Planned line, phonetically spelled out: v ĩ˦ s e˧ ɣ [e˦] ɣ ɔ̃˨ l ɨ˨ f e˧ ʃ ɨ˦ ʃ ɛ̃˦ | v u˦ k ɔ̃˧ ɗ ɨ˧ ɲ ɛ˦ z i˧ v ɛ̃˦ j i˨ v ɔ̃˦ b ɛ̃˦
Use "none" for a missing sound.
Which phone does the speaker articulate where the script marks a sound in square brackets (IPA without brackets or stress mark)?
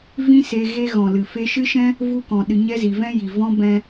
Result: e˦